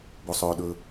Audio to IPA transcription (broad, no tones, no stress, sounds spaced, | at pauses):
b o sˤ ɵː ɗ ɵ